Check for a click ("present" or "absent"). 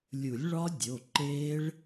present